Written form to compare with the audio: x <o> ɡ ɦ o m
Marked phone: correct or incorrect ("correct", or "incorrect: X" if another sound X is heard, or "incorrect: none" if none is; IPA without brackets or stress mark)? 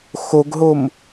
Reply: correct